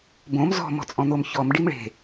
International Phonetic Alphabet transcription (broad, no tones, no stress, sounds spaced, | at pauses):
b õ m z ɔ̤ m ɔ̤ t͡sʼ ɔ̃ n̪ o m ç ɔ m ɖ i m ɭ e̤